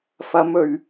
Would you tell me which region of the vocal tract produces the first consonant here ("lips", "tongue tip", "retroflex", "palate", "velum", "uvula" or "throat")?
lips